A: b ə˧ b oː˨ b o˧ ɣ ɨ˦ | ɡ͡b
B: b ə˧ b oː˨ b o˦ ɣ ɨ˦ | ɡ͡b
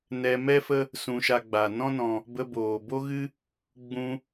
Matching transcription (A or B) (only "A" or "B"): B